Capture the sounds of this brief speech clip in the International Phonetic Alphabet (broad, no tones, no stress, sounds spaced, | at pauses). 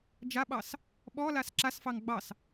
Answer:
d͡ʒ a ɓ ɑ s | ɓ ɔ l a s ǁ a s f ɑ ŋ ɡ͡b ɑ s